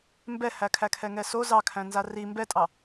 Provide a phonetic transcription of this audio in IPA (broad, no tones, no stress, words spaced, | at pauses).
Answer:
mbɛhækʰækʰɛ ŋɛso zɑkʰæ̃nza ri mbɛtʼɑ